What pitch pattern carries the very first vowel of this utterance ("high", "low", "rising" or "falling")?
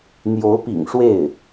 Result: rising